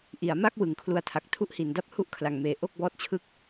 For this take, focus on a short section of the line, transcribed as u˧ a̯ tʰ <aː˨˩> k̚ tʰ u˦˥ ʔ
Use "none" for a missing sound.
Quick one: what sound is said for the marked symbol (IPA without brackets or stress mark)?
a˨˩